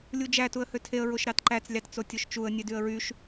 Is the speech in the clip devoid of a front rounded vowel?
no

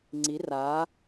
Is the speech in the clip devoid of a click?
no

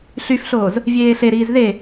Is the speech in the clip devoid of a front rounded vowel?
no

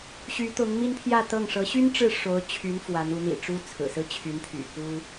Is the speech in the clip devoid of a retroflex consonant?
no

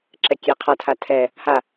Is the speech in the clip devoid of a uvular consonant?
no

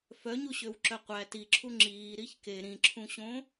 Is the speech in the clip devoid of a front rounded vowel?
no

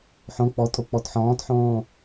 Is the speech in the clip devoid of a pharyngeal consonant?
no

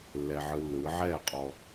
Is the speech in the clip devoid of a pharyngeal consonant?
no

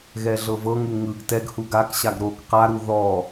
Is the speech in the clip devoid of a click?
yes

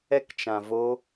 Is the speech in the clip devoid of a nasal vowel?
no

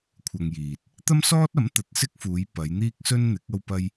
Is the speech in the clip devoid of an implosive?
yes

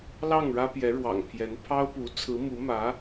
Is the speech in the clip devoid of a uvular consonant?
yes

